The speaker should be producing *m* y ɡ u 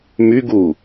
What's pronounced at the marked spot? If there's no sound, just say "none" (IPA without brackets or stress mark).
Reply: m